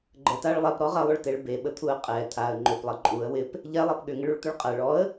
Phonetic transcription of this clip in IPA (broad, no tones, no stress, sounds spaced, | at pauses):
ɡ͡ǃ ə t a ɭ lˠ ɛ p ɾ ɔ ʁ ɐ lˠ ʏ ɭ t e ɭ b e ɓ ə t̪ʰ u ə̯ qʼ ɛ t̪ʰ a ə̯ ŋ͡ǃ ʏ p lˠ ɐ ǃʼ u ə̯ w ɪ p | ʎ ɛ lˠ ɛ p ɠ ʏ ŋ ɪ ɭ u ɭ t̪ ʏ ɭ qʼ ɐ ɭ ɔ ə̯